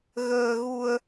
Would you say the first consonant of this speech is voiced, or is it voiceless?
voiced